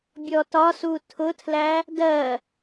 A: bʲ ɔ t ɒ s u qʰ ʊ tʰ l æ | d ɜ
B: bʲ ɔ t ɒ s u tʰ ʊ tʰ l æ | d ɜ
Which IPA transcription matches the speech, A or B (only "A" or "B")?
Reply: B